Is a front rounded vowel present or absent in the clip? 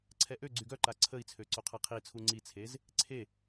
present